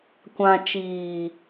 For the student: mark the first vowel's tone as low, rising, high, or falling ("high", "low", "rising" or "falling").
low